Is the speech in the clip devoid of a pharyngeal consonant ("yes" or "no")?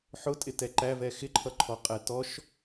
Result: no